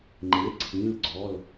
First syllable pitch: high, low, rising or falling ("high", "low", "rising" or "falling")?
rising